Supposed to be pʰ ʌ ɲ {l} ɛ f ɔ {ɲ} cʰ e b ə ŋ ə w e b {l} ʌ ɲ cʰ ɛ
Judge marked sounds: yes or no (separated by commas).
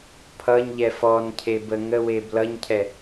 no, no, yes